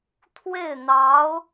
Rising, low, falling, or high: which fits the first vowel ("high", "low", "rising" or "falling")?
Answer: falling